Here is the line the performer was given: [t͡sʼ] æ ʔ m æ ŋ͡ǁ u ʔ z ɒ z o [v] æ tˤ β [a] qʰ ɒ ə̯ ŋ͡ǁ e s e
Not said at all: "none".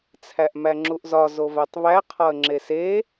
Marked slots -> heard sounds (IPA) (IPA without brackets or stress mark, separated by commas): t͡sʰ, v, æ